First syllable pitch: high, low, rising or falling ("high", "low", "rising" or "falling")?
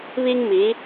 high